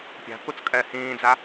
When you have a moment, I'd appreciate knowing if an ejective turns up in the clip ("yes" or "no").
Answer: yes